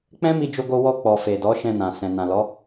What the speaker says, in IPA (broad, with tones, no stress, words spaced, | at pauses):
k͡pɛ̃˦mi˧d͡ʒo˧ɡo˧ wɔ˧k͡pɔ˨ fe˨dɔ˨˦ ʃɛ̃˧nã˨ sɛ̃˨ nã˨lɔ˨˦